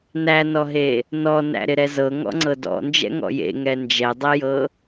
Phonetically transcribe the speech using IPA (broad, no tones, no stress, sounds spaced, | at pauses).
n æ n ɔ ɦ e | n ɔ n æ̰ ɾ ɪ ɾ ɛ z ɤ ŋ ɔ̰ ŋ͡ǀ ɤ d ɔ̰ n d͡ʒ ɛ̰ ŋ ɔ̰ j ḛ ŋ ɛ n d͡ʒ ɛ dˤ ɛ j ɤ